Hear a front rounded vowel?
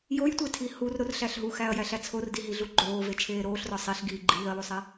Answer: no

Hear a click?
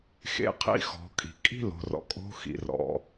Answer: no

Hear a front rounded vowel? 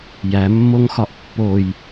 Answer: no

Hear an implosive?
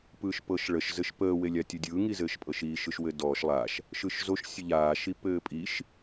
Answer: no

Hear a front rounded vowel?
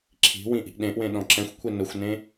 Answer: no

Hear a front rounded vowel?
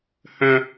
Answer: yes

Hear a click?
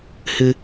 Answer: no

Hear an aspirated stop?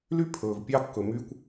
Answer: yes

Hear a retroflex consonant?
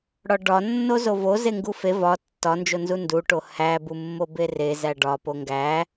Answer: yes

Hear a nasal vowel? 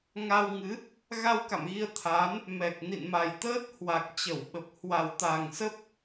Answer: no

